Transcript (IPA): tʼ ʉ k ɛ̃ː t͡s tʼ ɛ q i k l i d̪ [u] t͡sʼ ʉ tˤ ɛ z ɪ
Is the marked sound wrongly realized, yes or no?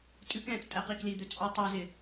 yes